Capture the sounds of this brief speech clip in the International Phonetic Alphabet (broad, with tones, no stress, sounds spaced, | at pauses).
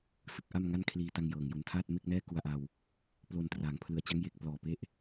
s ɯ˥˩ k̚ ʔ a˥˩ m ŋ a˥˩ n kʰ l iː˧ t a˧ ŋ j ɤː˨˩ ŋ j u˨˩ n tʰ aː˥˩ t̚ m e˥˩ k̚ n ɛː˥˩ k u˧ a̯ ʔ a˧ w | p l o˧ n t r aː˩˦ ŋ pʰ l ɯ˧ a̯ t͡ɕ a˦˥ ŋ j e˥˩ k̚ p l ɔː˨˩ p e˦˥ ʔ